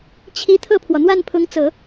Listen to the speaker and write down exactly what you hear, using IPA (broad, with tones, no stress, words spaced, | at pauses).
t͡ɕʰi˧˥ t̪ʰɤ˥˩pʰwɔ˩ n̪wa˥˩npʰʊ˧˥ŋt͡sɤ˨˩˦